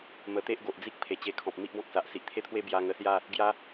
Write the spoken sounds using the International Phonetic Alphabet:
m ə˨˩ t̪ e˦ ʔ ɡ o˨ ʔ d͡z i˦ k̚ pʰ e˨˩ t͡ɕ e˧ kʰ ɔ̃˨ p̚ m i˦ ʔ b ɔ̃˦ k̚ s a˨ ʔ s i˨ ʔ t̪ʰ e˥˧ t̪ʰ w e˦ b j a˧ ŋ ə˧ s j a˥˧ | ɡ j a˦

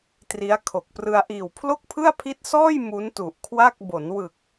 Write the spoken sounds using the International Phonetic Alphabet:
t r i˦˥ a̯ kʰ o˨˩ k̚ p r ɯ˧ a̯ ʔ iː˨˩ w pʰ l o˥˩ k̚ pʰ ɯ˥˩ a̯ pʰ i˦˥ t̚ s ɔː˥˩ j m u˦˥ n t u˨˩ ʔ kʰ w a˥˩ k̚ b o˩˦ n w ɯ˨˩ k̚

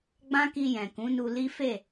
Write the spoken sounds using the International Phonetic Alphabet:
ɡ͡b ã˦ k i˧ j ɛ̃˨ k ũ˨˦ n u˧ l i˦ f e˦˨

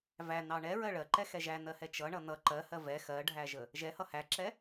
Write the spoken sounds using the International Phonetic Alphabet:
v æ n ɑ ɳ ɛ ɹ ɜ ɭ ɜ ǃ ɛ x ɛ ʒ æ n ɜ h ɛ t͡ʃ ʌ ɳ ʌ n ʌ ǃ ɜ h ɜ v ɛ x ɜ ɖʱ æ ʒ ə | ʒ ɛ h ʌ h æ ǁ ɛ

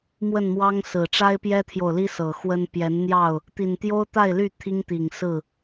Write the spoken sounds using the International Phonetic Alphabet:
m w ə˥˨ n m w ɑ˦ ŋ s ɹ̩˨˩ ʈ͡ʂ a˦ ɪ̯ p j ɛ˦ t̪ʰ j o˨ ʊ̯ l i˦ s ɤ˨˩ x w ə˦ n p j ɛ˨˦ n n̪ j ɑ˥˨ ʊ̯ | t̪ i˨˩ n t̪ j o˦ ʊ̯ t̪ a˥˨ ɪ̯ l y˥˨ t̪ʰ i˦ ŋ t̪ i˨˩ ŋ s ɹ̩˥˨

